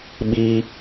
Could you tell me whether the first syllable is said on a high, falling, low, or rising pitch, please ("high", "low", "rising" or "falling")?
high